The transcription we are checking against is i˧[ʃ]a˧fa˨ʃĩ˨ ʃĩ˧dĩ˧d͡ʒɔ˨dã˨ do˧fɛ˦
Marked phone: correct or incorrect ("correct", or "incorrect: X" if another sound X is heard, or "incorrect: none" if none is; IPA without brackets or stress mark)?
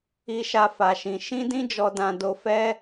correct